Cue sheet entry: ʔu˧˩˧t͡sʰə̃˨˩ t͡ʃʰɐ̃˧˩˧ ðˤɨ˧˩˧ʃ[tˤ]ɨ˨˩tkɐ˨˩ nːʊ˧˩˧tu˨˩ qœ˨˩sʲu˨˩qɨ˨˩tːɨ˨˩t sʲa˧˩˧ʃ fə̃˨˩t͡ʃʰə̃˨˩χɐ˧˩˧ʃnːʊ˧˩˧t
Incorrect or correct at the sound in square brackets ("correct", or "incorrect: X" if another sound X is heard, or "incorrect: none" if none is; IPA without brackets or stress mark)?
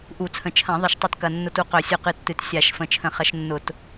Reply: correct